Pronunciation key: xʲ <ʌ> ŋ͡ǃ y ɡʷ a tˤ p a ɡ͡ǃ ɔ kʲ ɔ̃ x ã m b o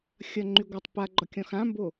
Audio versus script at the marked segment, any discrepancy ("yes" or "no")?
no